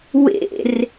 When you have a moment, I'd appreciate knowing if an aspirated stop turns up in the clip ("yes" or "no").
no